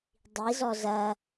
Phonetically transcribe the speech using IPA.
dˤ i z ɔ z ɐ

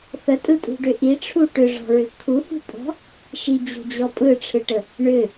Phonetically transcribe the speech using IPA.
θ ə tʼ ɯ tʼ ṳ ɖ ʏ ʔ i ʈ͡ʂʰ u ʈ ʏ ʐ ɔ̤ ɹ ʏ kʰ u h ṳ pʼ ɔ̤ | ʃ i d͡ʑ ṳ d͡ʑ ɔ pʼ ɯ ʈ͡ʂʰ ɯ ʈ ə | ɳ ʏ

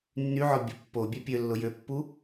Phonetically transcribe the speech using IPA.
nː y ʕ ɔ bʲ ɐ pː o bʲ ɛ pʲ ø lː ʊ j ø pː u

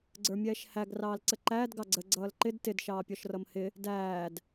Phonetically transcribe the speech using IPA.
ɡ͡ǀ ə˞ mʲ ɛː ʃ h æ ɡ r ɑː l ǀ ə ǃ æː d ɡ ɑ ɡ͡ǀ ə ɡ͡ǀ ʌː l ǃ ɪ d t ɪ d ʃ ɑː pʲ ɔ ʃ r ʌ m h ɪ | d æː d

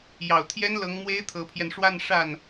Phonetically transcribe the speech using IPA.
j ɑ˨˩ ʊ̯ t̪ʰ j ɛ˥ n l ɤ˧˥ ŋ m w e˥ ɪ̯ t̪ʰ ɤ˧˥ pʰ j ɛ˧ n ʂ w a˥˧ n ʂ a˥˩ n

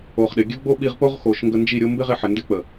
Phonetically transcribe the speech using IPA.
o˨ χ ɗ ɪ˨ ɡʲ ə˦ ɡ͡b o˦ ɓ i˧ ʁ p o˦ ʁ x o˨ ʃ ŋ ɡ ə˧ n d͡ʒ i˦˨ ɾʲ o˦ m b ɪ˦ ʁ ɪ˧ ħ ɪ˨ n d ɪ˦ k͡p ə˨

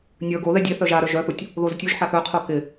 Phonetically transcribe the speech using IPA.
nʲ ə˞ ɡ o ð ɛ dʲ e θ œ ʒ a ɾ œ ʒ œ θ u tʲ | ð o z tʲ u ʒ ħ a θ œ qʰ o k ɪ

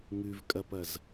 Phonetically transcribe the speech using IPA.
ŋ ʉ v kʼ ɐ p ɐ z

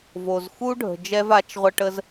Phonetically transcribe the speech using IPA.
v o˨ z x u˦ ɖʱ ə̤˨ d͡ʒ ɛ˧ v a˨˦ t͡ʃ ʁʷ ə˧ ʈ ə˦ z

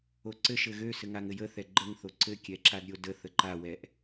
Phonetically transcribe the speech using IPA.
o ǀ ɘ ʃ ɘ ɣ ø s ɘ ŋ a ŋ ɘ j ə θ ɛ ɡ͡ǃ ə ŋ θ o ǀ ɘ kʲ ɛ ǁ a d ɾʲ o d ə θ ə ǃ a w ɛ ʔ

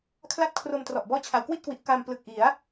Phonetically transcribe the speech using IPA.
kʰ l a˥˩ t̚ kʰ r o˧ m t r ɔ˨˩ ʔ b ɔː˦˥ t͡ɕʰ a˩˦ w k w i˥˩ t̚ k w i˨˩ ʔ k aː˧ m p l ɯ˨˩ k̚ ʔ i˩˦ a̯

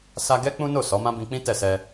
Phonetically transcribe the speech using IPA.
s a˧ ɡ ɛ˦ k͡p ũ˦ n o˦˨ s ɔ˨˦ m ã˦ b ĩ˧ k͡p ĩ˦ t ɛ˦˨ s ɛ˧

